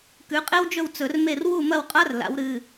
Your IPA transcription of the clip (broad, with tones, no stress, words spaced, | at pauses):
kʉ˩˧qʼe˦wd͡ʒɵ˦˨w t͡sɵ˧˩˧rme˦˨r wu˦˨mɐ˦˨wqʼa˦r la̰˨˥wɾɨ˩˧˩